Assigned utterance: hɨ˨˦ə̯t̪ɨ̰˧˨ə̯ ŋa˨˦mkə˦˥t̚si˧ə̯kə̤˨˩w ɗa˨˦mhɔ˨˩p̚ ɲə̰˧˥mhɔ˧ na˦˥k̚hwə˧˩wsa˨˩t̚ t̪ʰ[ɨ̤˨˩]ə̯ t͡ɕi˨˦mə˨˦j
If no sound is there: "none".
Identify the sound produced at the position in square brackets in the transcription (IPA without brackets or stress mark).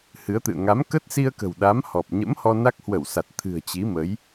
ɨ̤˨˩